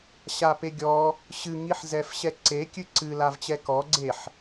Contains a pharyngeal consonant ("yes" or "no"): yes